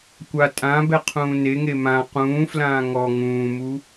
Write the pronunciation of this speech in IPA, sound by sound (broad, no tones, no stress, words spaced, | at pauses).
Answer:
kʷa tʼã bɛqʰũːneŋe mã qũːflãː ŋɔ ŋũːmu